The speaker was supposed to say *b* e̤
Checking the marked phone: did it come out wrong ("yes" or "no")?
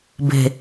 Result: no